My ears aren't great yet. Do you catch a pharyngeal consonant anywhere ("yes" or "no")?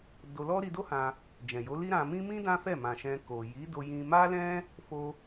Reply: no